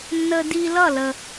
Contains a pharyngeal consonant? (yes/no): no